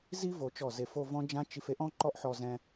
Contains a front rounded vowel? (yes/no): no